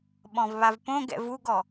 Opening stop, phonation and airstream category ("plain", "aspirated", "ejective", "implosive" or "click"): implosive